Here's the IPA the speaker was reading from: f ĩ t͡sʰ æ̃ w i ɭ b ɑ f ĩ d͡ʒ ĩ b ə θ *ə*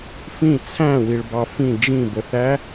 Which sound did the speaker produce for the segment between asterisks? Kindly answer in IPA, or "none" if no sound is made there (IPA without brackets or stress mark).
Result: æ